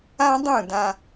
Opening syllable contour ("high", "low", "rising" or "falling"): high